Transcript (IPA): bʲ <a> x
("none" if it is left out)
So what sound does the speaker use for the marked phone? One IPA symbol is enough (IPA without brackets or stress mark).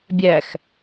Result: æ